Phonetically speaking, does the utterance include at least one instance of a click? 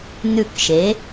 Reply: no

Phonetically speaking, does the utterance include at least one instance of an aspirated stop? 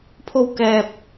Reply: yes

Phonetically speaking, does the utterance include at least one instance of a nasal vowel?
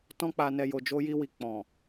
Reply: yes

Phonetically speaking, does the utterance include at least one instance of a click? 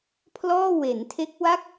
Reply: no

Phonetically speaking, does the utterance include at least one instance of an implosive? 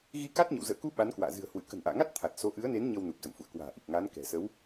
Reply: yes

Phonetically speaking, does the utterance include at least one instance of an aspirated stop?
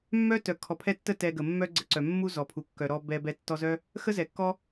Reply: yes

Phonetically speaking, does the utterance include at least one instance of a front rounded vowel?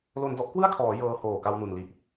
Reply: no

